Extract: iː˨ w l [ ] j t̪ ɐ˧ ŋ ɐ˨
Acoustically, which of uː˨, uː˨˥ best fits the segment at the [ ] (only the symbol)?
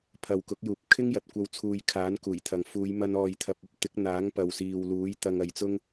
uː˨˥